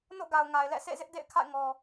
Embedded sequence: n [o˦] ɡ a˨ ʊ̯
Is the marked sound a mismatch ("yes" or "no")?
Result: yes